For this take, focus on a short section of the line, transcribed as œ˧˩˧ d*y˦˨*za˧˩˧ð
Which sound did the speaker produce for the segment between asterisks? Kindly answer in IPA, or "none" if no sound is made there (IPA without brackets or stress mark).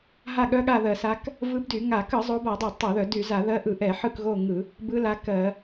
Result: y˧˩˧